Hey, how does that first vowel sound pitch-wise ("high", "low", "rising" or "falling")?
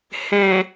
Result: low